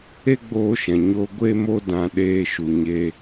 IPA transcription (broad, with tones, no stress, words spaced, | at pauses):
e˦ɡ͡boː˧ʃɛ̃˨ ɲo˦ ɡʷe˦mo˦dã˧ ɗeː˦ʃu˧ɲe˦